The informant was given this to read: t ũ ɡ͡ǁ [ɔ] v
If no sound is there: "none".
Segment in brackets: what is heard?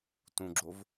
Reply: o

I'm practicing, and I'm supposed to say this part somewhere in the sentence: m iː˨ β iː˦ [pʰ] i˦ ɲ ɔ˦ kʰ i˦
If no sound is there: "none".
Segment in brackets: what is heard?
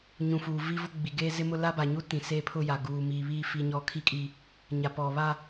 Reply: f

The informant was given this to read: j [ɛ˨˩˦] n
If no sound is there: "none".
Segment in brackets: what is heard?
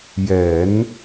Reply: ɛ˨˩˦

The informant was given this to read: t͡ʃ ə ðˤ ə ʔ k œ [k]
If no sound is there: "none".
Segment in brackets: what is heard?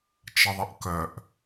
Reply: ʔ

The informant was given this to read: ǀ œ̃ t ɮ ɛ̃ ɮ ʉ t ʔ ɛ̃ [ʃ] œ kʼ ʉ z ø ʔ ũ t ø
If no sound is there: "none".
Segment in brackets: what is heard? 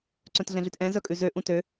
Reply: z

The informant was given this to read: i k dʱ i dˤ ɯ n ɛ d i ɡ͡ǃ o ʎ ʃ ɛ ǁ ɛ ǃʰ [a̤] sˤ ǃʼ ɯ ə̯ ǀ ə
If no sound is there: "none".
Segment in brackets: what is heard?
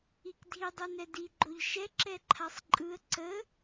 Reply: a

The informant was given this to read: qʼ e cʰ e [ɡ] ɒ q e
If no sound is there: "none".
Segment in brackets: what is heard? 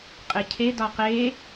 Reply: d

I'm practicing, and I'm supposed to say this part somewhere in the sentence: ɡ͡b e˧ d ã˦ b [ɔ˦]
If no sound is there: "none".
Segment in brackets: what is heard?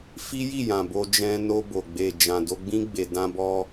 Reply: ɔ˦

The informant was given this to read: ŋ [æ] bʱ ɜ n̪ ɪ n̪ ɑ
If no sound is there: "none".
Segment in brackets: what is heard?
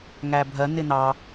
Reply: æ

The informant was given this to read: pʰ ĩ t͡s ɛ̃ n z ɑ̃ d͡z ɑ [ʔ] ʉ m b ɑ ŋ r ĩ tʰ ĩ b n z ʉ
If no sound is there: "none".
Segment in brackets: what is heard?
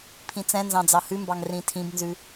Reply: h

